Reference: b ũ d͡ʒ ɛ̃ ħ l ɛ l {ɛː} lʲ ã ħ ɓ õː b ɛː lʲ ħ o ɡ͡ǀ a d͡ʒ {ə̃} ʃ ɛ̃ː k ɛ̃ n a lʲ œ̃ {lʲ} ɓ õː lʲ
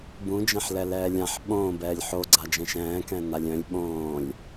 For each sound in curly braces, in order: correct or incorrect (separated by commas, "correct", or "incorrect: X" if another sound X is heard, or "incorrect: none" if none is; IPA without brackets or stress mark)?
correct, incorrect: ɛ̃, correct